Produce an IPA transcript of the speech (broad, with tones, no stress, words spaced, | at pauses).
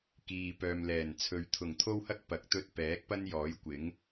kiː˨pœː˨mlɛː˨˩nt͡sʰɵ˨˧ɥ t̪ʰʊ˨˩ŋt̪ʰo˥whɐ˥k̚ pɐ˨˥k̚t̪ɵ˧t̚ pɛː˨˥k̚pɐ˥njɔː˨˥j kʷɪ˨˥ŋ